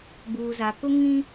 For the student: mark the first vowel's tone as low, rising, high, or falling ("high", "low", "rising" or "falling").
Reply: low